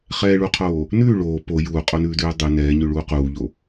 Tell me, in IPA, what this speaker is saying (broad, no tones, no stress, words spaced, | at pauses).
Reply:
χɛːɭuqʰoː | nʉː ɭoː po juːqʼonʉːdʉː dˤʉ nɛːɲʉɭuː quːʎo